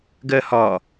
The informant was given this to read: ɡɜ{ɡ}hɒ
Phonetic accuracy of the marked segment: incorrect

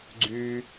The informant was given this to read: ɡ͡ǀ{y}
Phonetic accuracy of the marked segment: correct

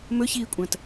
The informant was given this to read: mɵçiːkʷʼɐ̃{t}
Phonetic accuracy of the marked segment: correct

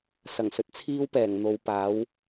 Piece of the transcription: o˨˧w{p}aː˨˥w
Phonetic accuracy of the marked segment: correct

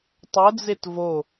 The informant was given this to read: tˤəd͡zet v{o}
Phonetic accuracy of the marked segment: correct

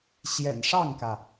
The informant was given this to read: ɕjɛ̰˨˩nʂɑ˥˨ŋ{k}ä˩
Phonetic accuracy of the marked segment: correct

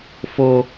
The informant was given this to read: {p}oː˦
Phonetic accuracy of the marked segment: incorrect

